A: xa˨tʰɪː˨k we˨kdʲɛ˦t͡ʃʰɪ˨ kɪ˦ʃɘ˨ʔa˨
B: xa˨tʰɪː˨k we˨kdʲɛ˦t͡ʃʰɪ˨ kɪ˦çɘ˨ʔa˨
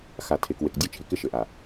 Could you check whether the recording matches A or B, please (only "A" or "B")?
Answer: A